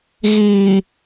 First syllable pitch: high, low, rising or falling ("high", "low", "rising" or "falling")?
low